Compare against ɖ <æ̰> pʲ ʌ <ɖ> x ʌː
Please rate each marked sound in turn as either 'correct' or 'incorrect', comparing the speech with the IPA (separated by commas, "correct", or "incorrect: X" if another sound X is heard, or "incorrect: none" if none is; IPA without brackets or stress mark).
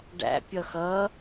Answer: correct, incorrect: none